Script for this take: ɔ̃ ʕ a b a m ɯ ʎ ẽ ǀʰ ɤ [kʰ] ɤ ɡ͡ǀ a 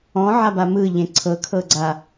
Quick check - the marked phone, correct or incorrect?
correct